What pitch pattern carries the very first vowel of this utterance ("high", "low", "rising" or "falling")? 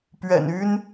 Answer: low